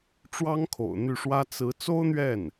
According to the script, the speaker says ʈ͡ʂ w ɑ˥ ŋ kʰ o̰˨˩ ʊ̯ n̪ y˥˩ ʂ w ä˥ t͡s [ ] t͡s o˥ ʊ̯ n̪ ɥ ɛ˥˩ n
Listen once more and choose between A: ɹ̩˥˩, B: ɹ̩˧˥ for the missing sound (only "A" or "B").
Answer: B